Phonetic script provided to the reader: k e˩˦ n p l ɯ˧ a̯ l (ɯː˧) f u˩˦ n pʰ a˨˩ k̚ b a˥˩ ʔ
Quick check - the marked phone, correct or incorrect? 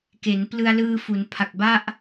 correct